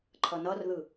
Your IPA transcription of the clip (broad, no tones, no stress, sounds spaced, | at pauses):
ǃʰ ʌ n ʌ r ð ɯ